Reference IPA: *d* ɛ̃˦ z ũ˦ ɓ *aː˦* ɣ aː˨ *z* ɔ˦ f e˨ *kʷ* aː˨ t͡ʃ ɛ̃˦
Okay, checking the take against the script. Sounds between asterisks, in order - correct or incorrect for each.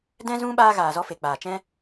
correct, correct, correct, incorrect

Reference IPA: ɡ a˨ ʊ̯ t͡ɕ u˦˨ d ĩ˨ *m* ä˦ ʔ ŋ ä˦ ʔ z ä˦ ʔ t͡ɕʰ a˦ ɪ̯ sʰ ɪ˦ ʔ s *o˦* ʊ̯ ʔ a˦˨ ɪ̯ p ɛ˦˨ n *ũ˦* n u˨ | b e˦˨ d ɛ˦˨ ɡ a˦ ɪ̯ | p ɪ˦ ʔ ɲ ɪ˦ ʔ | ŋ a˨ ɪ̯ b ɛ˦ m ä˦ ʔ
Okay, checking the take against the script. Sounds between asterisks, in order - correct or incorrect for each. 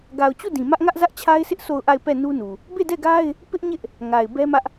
correct, incorrect, incorrect

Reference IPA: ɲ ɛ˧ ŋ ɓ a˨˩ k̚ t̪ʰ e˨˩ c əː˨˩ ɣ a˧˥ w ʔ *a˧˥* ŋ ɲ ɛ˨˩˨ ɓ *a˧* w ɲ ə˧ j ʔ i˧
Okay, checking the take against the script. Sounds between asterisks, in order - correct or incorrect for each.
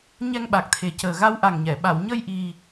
incorrect, incorrect

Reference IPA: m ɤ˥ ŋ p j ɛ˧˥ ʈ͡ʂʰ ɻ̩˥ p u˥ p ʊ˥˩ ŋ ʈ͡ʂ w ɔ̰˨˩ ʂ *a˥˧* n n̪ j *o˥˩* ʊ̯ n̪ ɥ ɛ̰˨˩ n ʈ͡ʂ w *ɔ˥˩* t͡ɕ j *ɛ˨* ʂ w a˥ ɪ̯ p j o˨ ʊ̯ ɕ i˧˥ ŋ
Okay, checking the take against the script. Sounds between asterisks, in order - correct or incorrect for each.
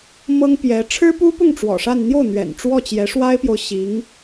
correct, correct, correct, incorrect

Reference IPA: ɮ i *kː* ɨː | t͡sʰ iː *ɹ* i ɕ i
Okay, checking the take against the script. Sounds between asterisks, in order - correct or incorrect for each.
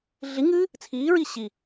incorrect, correct

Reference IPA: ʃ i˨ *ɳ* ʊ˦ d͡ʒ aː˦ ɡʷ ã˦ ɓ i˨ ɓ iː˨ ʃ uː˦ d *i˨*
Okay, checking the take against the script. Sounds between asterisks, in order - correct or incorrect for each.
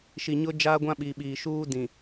incorrect, incorrect

